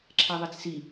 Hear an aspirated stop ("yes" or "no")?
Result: yes